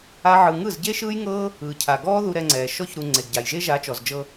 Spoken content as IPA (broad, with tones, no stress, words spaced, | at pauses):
a˦ʕɯ˧ ŋɯ˦˨zɟe˦ʃɯː˦jŋɤː˦ | ɯː˨cʰa˨ɡɔː˦ ðu˧ɾɛ˧ŋ͡ǀɛː˨ ʃɔ˧çɾu˨ ŋ͡ǀe˨ɡɟa˨jʒe˦ ʒa˨˦t͡ʃɔ˨zd͡ʒɤ˧